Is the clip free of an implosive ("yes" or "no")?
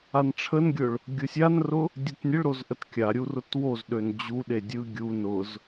no